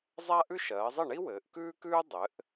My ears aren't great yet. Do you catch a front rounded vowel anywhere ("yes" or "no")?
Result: no